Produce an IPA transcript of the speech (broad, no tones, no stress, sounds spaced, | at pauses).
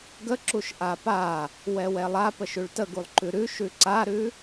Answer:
ɡ ə ǁ u ʃ ʔ a p a | w ɛ w ɛ lˠ a p ə ʃ ʉ ɭ t ə ɡ u lˠ ǃ ʉ ɾ ʉ ʃ ʉ ǀ a ɾ ʉ